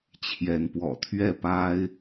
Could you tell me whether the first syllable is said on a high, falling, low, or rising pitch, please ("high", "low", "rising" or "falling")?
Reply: rising